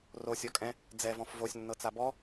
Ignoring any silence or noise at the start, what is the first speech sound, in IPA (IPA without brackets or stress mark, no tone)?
r